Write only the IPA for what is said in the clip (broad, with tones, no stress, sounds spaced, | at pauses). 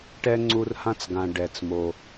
ʈ ɛ˥ ŋ͡ǀ u˦ r h ã˥ t͡s ɡ ã˨ ɖ ɛ˩ t͡s m o˩